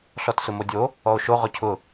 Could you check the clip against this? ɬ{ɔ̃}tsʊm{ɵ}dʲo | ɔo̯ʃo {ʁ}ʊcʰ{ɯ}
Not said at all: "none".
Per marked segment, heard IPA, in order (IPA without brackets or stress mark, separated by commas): ɔ, o, ʁ, ʊ